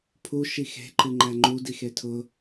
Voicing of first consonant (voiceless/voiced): voiceless